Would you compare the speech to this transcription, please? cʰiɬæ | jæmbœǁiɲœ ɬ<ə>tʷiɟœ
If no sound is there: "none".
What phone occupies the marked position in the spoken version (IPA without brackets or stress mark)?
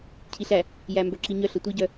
ə